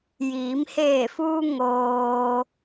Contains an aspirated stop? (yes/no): no